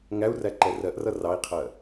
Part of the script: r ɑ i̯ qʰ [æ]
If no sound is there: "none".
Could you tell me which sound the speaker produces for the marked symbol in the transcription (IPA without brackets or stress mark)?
ɜ